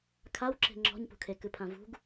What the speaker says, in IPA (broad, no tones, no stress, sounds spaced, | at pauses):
kʰ a w ǁ e̤ ŋ͡ǁ ɔ̤ ɲ p ṳ kʰ e k ɨ pʰ ã v ṳ ɡ